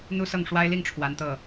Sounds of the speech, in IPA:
n̪ u˥ s ɤ˥˩ ŋ ʂ w a˥ ɪ̯ l i˥˩ ŋ ʈ͡ʂʰ w a˧˥ n t̪ ɤ˥˩

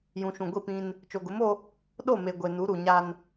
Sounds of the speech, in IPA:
j ũ˨ ʃ ũ˨ ɡʷ i˦˨ p ĩ˦ n | t͡ʃ o˨ ɡ ʊ˨˦ m o˦ | ɗ o˦˨ m e˨ ɡʷ e˨ n u˨˦ ɾ u˨ ɲ a˦ n

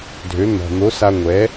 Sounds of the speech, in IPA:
dʱ ø˩˥ n̪ ɔ̤˩ n̪ o˩˥ s a˧ ŋʷ ɛ˩˥

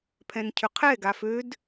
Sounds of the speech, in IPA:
pʰ ɛ̃ n cʰ ʏ qʰ ɛ ɡ a f ø d

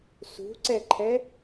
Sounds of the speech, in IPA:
s ṳ ǀ ɛ ǃʰ ɛ

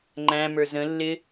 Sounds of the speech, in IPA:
ŋ͡ǃ æ̃ m ə˞ z ə̃ lː ɪ

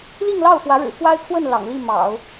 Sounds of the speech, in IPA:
l i˥˧ ŋ l ɑ˥˩ ʊ̯ f w ä˧˥ ɻ ɻ̩˨˩ f w a˥ ɪ̯ kʰ w ə˥˩ n l ɑ̰˨˩ ŋ l i˥˩ m ɑ̰˨˩˦ ʊ̯

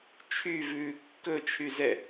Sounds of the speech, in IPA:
t͡ʃʰ y v ʉː kː ɵ t͡ʃʰ y z ɛ

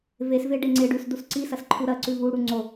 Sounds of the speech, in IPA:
v e s v e ɖ e ŋ͡ǀ e ɖ ʉ s d u s ǀ i s ɐ s ǃʰ u ɾ ɐ ǀ ʉ v u ɽ u ŋ͡ǀ o

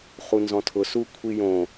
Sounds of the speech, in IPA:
χ u n z ɔ̃ tʰ ʊ s u kʷʰ i j õ

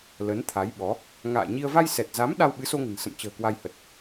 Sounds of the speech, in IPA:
l ə˨˦ n t̪ʰ a˨˦ j ɓ ɔ˨˦ | ŋ a̰ː˧˨ ɲ i˧ ə̯ v a˧ j s ɛ˨˩ t̚ z a˨˦ m ɗ a˧ w ɓ ɨ˨˦ s o˧ ŋ ə̤˨˩ n s ə̰˧˨ m t͡ɕ ə̤ː˨˩ k w a˧ j h ə˨˩ t̚

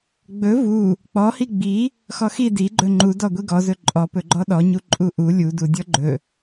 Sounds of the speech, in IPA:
ɡ͡b ɵ v u | k͡p ɔ h i ɡ͡b i | x ɔ x i d i ɡ͡ǃ ɵ ŋ͡ǃ u d ɔ ɡʷ i ɡ ɔ z ɵ ǃʼ ɔ p ɵ ɡ͡ǃ ɔ ɗ ɔ ɲ u ǃʼ u ʔ u lʲ u d u dʲ ɔ ɡ͡ǃ ɵ

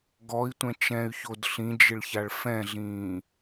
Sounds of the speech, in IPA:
ɡ ɔ i̯ tʷ ɛ̃ t͡ʃ ɛ̃ y̯ ç o d ɬ ĩ d͡ʒ ɪ ɭ ç a ɭ f ɛ̃ ɮ ĩː

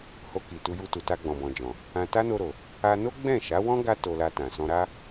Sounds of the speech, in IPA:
h o˧ k i˨ t u˧ j u˧ t u˨ t a˧ ɡ͡b ɔ̃˨ b ɔ̃˨ d͡ʒ ɔ̃˨ | ã˧ t a˦ n o˧ ɾ o˨ | a˧ n o˦ ɡ͡b ɛ̃˦˨ ʃ a˨˦ w ɔ̃˦ ɡ a˦ t o˧ l a˧ t ã˨ s ɔ̃˧ ɾ a˦

